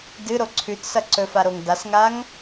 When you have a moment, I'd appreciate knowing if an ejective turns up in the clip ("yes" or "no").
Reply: no